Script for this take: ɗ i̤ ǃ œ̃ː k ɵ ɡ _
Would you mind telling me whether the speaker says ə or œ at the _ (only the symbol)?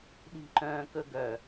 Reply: œ